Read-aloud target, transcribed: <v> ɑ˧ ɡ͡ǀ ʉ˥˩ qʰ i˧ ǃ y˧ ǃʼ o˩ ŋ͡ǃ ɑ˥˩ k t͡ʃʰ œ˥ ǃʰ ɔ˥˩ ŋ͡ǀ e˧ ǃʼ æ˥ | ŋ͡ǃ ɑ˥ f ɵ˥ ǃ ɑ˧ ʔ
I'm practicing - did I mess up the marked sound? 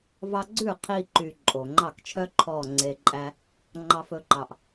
no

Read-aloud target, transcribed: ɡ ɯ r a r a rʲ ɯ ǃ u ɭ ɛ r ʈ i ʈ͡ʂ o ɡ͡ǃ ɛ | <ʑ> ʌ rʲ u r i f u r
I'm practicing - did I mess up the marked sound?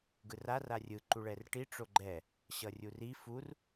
yes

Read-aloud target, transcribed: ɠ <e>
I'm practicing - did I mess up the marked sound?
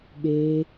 no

